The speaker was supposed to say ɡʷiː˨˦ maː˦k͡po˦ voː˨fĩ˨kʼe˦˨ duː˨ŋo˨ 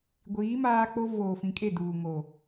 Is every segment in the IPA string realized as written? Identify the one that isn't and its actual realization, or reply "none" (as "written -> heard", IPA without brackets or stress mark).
none